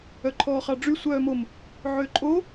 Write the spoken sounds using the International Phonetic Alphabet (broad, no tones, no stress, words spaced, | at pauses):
œǃʰɔːχɑɖ͡ʐy sʷœːmom | ʕøǃʼo